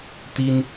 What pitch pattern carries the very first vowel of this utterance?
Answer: high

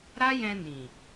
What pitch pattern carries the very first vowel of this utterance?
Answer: high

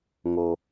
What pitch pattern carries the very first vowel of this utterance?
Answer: low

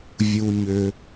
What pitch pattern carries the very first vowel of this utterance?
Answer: low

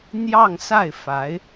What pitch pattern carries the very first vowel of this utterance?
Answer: falling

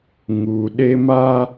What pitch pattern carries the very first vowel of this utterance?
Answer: low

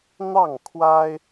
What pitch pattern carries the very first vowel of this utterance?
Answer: falling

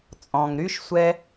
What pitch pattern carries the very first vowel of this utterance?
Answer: low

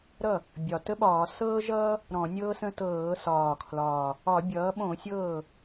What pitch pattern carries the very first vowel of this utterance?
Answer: falling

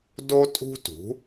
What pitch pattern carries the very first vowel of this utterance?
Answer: high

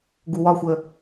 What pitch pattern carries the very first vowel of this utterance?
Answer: low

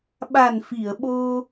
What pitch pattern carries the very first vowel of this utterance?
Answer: low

